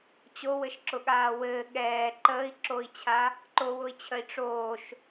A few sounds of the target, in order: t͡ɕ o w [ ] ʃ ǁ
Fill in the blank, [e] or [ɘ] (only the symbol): ɘ